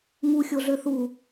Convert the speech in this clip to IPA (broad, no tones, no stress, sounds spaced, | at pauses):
ŋ u xʲ o ɮ ø θ u